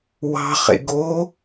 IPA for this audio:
w ɑ̤ χ ḛ ɡ o

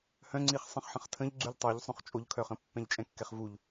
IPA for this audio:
h œ̃ ŋ͡ǀ i χ sˤ ə̃ χ ħ ə̃ χ tʰ ə̃ ʎ ɡ͡ǀ y ʎ tˤ o ʎ sˤ õ χ t͡ʃʼ o ʎ kʰ œ χ ə̃ pː ɛ̃ ʎ t͡ʃʼ ɛ̃ kː ɛ χ v u ʎ

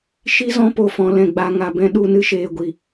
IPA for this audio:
ʃ i˦ z ɔ̃˦ p o˨ f ɔ̃˨ l ɛ̃˨ ɡ͡b a˨ ŋ a˨ b ɛ̃˧ ɗ u˦˨ n ɨ˦ ʃ eː˨ ɡʷ i˨

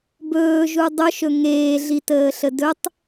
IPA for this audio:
b ɵː ʒ u dˤ ɵ ʃ ɵ ŋ eː ɮ i t əː ɬ ə d ɵ tˤ

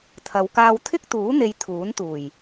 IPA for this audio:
t̪ʰ ɐ˨˧ w k aː˧ w t̪ʰ ɪ˥ k̚ t̪ uː˨˥ n̪ e˨˧ j t̪ʰ uː˨˥ n t̪ uː˨˩ j

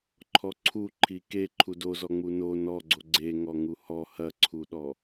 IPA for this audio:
ǃʰ ɔ ǀʰ u ǃʰ i k e ǃʰ u d o z ɔ ŋ͡m u n o n ɔ ɡ͡ǀ o ɡ͡ǀ e ŋ ɔ ŋ u h ɔ h ɐ ǀʰ u ɗ ɔ

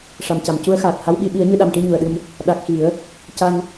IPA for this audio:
ʂ a˨˩ m c a˨˩˨ m c u˧˥ ə̯ x aː˨˩ t̚ h a˧˥ w ɓ i˧ ɓ i˨˩˦ ə̯ ɲ ɨ˧ ɗ a˨˩ m ʈ i˧ ɲ u˨˩ ə̯ ɗ ɨ˧ m | ɗ a˨˩ k̚ x i˨˩˦ ə̯ | c a˧ ŋ

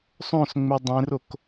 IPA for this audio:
sˤ õ s ŋ͡m e dˤ ẽ r o k

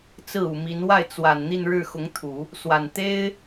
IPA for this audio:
t͡s ɹ̩˥˩ u˨˩ m i˧˥ n w a˥˩ ɪ̯ t͡s w a˨˩ n n̪ i˥˧ n ɻ ɻ̩˥˩ x ʊ˧˥ ŋ t̪ʰ u˨˩˦ | s w a˨˩ n t̪ e˥ ɪ̯

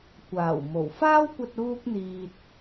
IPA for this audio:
kʷ aː˨˩ w m o˨˩ w f aː˥ w kʷ ɐ˧ t̚ uː˥ k̚ n̪ iː˧ t̚

